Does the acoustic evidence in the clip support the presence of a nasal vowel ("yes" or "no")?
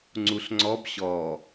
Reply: no